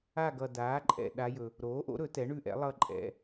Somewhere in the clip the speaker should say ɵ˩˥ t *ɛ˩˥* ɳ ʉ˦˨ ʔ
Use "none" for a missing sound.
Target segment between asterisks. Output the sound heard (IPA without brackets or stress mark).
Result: ɛ˩˥